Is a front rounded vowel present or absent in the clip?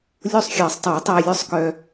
present